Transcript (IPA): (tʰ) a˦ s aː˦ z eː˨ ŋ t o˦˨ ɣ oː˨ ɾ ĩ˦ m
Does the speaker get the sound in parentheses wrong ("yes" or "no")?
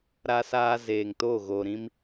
yes